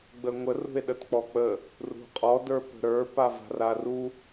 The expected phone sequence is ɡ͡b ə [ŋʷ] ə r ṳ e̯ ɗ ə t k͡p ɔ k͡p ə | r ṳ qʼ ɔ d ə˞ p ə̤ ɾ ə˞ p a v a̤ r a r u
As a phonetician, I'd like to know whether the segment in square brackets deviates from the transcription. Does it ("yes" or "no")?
no